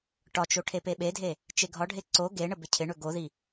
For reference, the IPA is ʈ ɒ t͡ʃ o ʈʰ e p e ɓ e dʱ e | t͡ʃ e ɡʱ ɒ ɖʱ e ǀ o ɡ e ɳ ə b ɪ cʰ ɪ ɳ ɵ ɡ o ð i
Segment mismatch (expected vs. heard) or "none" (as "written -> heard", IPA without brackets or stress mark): none